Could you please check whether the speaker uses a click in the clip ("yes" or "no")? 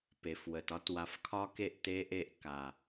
no